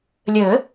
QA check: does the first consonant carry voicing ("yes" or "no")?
yes